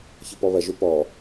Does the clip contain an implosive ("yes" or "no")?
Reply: no